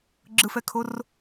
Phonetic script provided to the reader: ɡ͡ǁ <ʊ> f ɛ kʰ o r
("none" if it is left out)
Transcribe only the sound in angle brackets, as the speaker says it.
ɯ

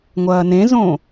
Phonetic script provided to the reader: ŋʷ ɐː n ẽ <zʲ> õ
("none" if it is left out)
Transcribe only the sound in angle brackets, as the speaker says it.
z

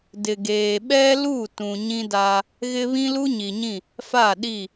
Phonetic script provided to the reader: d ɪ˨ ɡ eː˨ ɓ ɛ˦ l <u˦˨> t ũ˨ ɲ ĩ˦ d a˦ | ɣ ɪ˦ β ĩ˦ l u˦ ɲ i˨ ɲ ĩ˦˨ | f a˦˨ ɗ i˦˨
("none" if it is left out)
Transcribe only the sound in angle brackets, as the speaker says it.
u˦˨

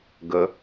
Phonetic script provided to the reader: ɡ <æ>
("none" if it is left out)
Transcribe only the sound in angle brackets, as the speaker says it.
ə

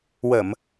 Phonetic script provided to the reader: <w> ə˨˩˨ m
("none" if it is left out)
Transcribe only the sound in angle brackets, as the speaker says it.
w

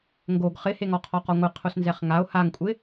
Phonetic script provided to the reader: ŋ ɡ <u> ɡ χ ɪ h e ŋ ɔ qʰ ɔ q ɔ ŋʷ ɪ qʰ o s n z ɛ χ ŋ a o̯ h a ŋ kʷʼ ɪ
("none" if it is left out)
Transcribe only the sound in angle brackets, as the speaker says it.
o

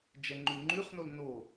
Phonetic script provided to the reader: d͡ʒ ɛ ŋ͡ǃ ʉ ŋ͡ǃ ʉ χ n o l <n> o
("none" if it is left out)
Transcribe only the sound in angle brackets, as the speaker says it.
n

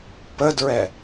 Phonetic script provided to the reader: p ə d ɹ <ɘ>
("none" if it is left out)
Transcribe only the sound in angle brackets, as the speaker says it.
ɛ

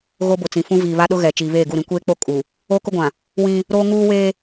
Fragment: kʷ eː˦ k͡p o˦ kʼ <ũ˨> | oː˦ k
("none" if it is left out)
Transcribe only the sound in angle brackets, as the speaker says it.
u˨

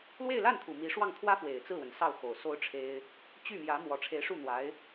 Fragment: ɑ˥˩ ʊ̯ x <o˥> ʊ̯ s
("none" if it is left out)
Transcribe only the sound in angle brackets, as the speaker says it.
o˨˩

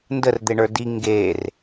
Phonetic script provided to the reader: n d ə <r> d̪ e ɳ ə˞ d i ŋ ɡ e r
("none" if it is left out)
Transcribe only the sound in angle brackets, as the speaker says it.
r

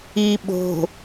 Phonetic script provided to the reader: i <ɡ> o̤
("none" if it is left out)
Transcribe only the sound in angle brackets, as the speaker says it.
ɓ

